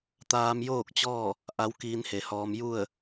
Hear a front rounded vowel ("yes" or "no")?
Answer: no